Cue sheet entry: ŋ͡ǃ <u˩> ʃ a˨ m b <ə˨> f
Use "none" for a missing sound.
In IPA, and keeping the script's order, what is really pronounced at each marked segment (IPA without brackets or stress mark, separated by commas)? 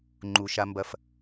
u˩, ɐ˨